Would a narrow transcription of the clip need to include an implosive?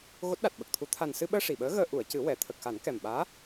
yes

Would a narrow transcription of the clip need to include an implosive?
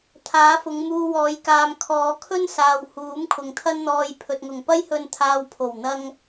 no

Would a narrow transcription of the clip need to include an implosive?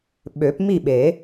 yes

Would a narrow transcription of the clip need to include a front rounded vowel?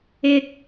no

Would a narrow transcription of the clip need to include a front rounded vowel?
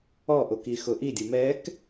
no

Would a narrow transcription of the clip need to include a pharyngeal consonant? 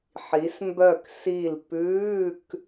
yes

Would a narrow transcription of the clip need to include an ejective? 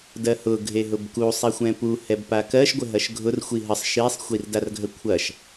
no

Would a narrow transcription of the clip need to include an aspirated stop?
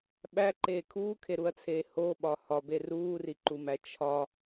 yes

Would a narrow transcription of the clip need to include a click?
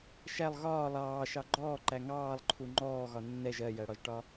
yes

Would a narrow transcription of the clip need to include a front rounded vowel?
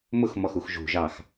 no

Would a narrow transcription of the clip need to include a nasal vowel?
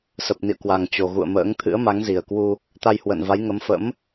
no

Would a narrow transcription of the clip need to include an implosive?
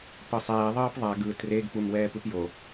no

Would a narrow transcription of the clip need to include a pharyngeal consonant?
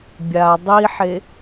yes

